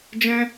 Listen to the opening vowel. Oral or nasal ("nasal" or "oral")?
nasal